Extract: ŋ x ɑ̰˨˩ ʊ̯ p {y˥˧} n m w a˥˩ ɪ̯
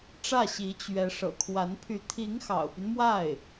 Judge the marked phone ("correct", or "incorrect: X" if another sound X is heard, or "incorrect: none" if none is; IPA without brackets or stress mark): incorrect: y˦